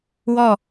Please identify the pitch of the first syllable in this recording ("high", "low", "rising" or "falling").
falling